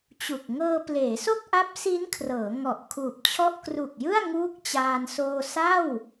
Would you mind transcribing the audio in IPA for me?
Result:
t͡ɕu˨˩k̚ ŋɤː˧ pleː˩˦so˥˩k̚ ʔa˦˥p̚si˦˥nkʰrɤː˩˦ ŋɔ˨˩ʔkʰuː˨˩p̚t͡ɕʰɔ˥˩ʔ kru˨˩k̚jɯ˥˩a̯ ŋuː˥˩k̚t͡ɕaː˧n soː˧sa˥˩w

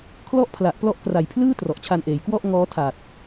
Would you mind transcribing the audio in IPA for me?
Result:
kʰlɔ˥˩ʔpʰla˨˩ʔ plɔ˦˥ʔkra˨˩jpʰlɯː˥˩ trɔ˨˩ʔt͡ɕʰa˧nʔeː˩˦j kwɔ˥˩ʔ ŋɔː˦˥tʰa˨˩t̚

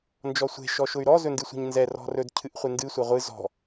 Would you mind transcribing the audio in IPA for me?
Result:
nd͡ʒɔsʷe̤ ʃɔʃʊy̯ɾɔ zɵndɨsʷe̤ɲnzɛ rɔ̤rɵd cʰɨʔχʷendɨ sʷɛʁʷɨ zɔ̤

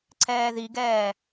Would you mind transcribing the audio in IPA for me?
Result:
ǀʰɛːðiɡɛː

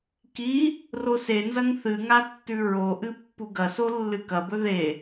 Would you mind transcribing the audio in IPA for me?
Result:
ki | rosenzɐŋ θɨŋatːʉ ɹoʔɨ pːuɡɐso lːɨkɐbɵ ðe

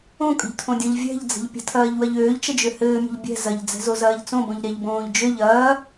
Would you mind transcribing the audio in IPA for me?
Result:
õkʼə̤ʎtʰõdʲõʎ vʲɛ̤ʎd͡zə̤ʎ pʲə̤tʰɐːʎwɐʎ øːʎt͡ʃəd͡ʒø hɘːmʲə̤ʎ bʲɛ̤ zɐʎd͡zɛ̤zozɐːʎ t͡sõbõʎɾɛʎbõːʎ d͡ʒøʎ ɐː

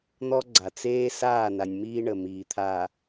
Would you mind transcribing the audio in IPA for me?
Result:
n̪ɔ˦ɡ͡ǀa˨t͡seː˦ saː˦˨na˨nʲmiː˦ ɳə˨miː˨t̪ʰa˨

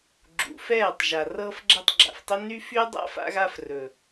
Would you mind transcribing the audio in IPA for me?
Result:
ɡ͡ǁṵ˨fɛː˦˨tˤʒa˨ rɤː˧fɡ͡ǁɛ˧tˤ ɡ͡ǁa̰˨ftˤɘ˦ nyː˦fy˦ dˤa̰˦fa̰˧ɣa˧f rɵ˨

